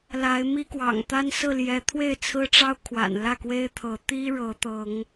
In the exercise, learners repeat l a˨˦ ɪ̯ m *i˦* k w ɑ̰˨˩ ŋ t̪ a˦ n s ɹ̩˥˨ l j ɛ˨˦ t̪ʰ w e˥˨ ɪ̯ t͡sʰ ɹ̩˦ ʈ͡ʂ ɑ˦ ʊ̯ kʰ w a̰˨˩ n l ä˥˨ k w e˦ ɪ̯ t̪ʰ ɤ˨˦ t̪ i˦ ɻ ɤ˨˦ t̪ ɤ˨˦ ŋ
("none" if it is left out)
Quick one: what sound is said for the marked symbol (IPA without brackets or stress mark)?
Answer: i˦